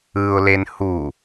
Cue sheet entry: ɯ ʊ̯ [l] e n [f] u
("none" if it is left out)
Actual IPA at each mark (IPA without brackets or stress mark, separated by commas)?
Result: l, h